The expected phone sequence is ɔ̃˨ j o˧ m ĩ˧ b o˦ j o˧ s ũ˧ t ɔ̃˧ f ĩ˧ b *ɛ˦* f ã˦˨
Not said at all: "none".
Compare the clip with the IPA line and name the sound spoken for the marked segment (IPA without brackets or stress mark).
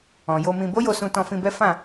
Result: ɛ˦